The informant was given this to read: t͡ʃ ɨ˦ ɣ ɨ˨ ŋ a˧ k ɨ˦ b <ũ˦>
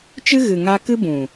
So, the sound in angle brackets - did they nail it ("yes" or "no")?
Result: no